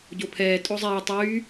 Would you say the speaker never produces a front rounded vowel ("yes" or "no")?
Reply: no